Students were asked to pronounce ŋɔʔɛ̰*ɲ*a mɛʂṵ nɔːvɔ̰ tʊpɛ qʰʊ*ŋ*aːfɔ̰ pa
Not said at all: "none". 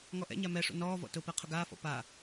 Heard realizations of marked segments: ɲ, ɡ

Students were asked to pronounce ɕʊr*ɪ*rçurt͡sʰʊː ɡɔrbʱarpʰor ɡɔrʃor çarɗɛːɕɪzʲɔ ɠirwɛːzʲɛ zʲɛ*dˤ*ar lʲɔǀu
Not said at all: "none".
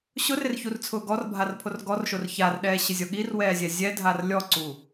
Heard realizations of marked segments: ɪ, dʱ

